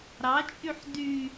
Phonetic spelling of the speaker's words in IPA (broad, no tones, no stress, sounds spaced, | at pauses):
ɾ ɑ t͡ʃʼ y ħ d y